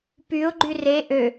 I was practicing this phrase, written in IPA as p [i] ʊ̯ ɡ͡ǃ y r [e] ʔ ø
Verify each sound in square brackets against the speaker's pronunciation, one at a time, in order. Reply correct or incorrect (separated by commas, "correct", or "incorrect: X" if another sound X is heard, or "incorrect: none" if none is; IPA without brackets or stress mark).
incorrect: y, correct